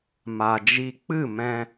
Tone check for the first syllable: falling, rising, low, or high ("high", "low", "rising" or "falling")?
low